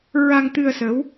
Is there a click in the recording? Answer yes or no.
no